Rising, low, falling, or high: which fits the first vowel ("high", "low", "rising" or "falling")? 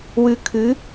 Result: low